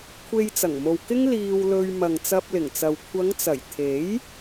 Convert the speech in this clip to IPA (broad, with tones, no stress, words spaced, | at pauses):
kʷʰe˧jt͡sɐ˨˩ŋmo˨wkɪ˥ŋ liː˧wlɵ˧ɥ mɐ˨ŋt͡sɐ˧p̚lɪ˨˩ŋt͡sɐ˨w kʷʰɐ˨˧ŋt͡sɐ˨˩j t̪ʰe˨˥j